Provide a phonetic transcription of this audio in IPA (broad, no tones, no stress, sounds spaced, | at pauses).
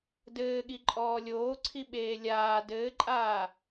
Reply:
d ɘː ɠ i ǃʼ ɔː lʲ oː ǀʰ i ɓ eː lʲ aː d ɘː ǃʼ aː